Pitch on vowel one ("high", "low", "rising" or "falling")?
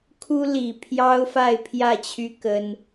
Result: high